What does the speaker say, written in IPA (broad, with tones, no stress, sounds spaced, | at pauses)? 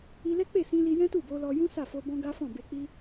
i˧ l ɛ˦ k͡p e˦˨ s ĩ˧ l i˧ j ɛ̃˦ t u˦˨ b o˧ l ɔ˧ j ũ˦ s a˦˨ f o˧ b ɔ̃˦ ɡ a˦ f ɔ̃˦˨ b e˧ k͡p i˦